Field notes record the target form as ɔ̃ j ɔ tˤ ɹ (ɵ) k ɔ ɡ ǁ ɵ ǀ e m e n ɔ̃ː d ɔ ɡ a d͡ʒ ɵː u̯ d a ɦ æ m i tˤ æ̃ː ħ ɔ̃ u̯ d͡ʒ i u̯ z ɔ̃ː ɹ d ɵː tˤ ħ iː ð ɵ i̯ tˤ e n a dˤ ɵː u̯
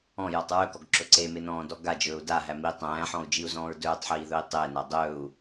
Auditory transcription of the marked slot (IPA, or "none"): ɵ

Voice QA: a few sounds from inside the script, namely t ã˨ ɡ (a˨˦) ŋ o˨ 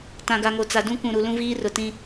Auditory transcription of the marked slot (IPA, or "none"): a˨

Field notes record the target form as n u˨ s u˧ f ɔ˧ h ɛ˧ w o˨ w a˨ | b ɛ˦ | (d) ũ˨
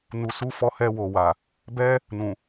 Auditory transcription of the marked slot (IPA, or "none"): n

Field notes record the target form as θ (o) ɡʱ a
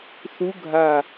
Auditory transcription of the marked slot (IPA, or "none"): u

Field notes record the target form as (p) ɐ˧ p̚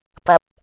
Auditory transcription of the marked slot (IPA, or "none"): p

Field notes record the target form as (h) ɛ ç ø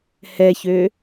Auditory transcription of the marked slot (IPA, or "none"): h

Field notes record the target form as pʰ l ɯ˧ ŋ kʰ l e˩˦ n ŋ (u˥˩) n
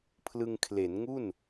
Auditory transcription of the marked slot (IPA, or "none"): u˥˩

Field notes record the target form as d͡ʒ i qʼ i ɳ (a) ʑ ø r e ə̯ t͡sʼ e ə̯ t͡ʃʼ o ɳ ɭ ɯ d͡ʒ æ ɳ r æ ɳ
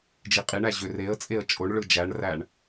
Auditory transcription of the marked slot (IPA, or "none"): æ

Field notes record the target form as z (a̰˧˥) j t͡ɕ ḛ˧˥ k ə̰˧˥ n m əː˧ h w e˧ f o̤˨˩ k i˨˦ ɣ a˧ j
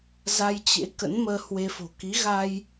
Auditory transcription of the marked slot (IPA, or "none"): a˧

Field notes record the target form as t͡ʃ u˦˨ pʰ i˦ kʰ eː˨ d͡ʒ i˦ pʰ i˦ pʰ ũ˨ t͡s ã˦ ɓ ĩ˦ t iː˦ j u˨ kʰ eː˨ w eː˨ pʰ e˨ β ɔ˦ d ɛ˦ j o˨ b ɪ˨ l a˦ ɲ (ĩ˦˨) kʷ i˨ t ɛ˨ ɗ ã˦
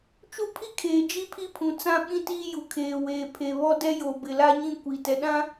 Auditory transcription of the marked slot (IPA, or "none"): ĩ˦˨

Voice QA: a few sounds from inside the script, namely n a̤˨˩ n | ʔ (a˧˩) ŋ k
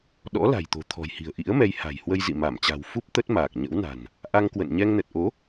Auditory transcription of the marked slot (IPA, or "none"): a˧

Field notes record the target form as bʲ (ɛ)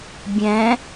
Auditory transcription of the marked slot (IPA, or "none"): ɛ̃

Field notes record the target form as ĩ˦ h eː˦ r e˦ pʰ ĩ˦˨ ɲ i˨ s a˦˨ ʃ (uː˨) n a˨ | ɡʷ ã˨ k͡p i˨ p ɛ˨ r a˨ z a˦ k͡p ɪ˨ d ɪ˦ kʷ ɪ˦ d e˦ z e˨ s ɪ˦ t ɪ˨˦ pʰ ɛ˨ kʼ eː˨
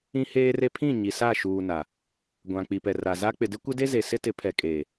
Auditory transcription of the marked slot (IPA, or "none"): uː˨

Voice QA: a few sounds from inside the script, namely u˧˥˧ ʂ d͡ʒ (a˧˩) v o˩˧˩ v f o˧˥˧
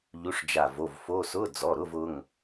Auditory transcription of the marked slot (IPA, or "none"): a˧˩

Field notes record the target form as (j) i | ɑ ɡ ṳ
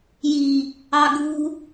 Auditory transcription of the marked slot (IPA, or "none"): j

